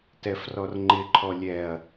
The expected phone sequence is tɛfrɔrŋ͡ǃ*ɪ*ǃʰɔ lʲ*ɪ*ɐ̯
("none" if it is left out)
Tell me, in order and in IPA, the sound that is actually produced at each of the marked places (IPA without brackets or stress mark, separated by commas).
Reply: ɪ, ɛ